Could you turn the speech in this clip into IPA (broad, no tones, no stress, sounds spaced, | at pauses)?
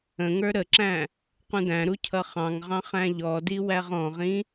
ə̃ ŋ ə˞ ɾ ə ǁ æ̃ | q ũ d æ̃ ɾ u cʰ ʌ χ ɑ̃ ŋ ʁ ɑ̃ χ æ̃ ʎ ɔ d i w æ ʁ ɔ̃ ʁ ĩ